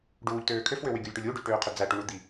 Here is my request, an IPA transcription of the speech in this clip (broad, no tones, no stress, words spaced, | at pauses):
ɖuːʎtøː kʰøfwø wyɡʲulʲʈulʲ uɖyʎʈøːqʰø d͡zæʈuɳud̪i